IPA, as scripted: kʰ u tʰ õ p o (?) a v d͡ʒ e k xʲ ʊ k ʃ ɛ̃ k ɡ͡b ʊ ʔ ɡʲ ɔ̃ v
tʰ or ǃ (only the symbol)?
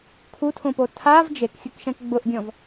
tʰ